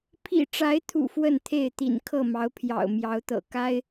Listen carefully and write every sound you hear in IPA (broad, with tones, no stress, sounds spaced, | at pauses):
pʰ ḭ˨˩ ʈ͡ʂ a˨˦ ɪ̯ t̪ʰ ṵ˨˩ f w ə˥˨ n t̪ʰ e˥˨ ɪ̯ t̪ ḭ˨˩ n kʰ ɤ˥˨ m ɑ˨˦ ʊ̯ pʰ j ɑ̰˨˩ ʊ̯ m j ɑ˨˦ ʊ̯ t̪ ɤ̰˨˩ k a˦ ɪ̯